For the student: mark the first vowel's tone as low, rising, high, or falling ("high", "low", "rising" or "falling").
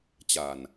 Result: low